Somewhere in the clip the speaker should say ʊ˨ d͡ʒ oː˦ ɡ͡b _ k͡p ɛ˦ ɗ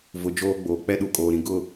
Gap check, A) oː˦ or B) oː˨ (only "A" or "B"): B